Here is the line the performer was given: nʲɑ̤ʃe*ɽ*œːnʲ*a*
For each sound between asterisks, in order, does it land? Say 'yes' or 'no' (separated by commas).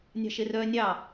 no, no